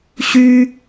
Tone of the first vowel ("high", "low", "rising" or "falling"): high